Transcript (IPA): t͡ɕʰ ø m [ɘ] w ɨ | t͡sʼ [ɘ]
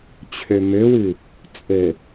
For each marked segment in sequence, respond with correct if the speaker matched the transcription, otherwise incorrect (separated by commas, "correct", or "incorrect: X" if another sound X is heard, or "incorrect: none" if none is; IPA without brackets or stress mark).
incorrect: ø, correct